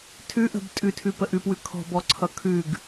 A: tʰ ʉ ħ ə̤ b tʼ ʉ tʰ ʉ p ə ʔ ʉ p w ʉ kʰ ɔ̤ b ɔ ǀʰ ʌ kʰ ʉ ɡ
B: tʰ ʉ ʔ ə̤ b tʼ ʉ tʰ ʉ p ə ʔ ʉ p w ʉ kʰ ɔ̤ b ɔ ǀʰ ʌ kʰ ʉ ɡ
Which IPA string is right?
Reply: B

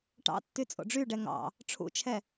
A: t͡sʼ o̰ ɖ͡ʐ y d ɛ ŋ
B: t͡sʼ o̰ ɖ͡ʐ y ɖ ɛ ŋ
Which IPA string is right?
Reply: B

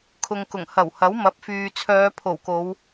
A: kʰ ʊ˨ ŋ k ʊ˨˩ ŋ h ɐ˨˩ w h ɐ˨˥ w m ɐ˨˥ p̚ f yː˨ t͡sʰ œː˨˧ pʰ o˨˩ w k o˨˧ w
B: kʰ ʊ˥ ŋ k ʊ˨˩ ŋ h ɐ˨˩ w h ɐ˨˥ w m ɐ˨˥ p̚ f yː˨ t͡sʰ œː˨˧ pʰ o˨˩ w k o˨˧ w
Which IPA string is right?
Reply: A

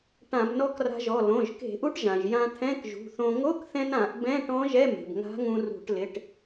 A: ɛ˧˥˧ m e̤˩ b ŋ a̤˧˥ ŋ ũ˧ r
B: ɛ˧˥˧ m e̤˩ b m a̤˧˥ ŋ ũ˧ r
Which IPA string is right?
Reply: A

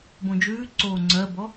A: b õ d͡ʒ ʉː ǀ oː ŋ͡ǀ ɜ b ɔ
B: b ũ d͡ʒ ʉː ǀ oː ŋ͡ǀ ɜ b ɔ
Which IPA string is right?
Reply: A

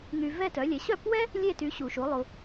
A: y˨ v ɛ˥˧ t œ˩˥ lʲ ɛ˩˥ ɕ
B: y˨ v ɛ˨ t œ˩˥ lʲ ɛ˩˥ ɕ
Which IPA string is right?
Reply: A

